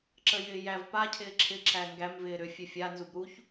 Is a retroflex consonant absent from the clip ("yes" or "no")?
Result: yes